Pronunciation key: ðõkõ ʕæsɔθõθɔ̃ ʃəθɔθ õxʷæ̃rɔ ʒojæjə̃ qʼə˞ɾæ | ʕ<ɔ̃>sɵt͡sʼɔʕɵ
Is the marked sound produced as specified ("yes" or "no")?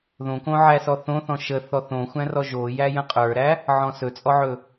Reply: yes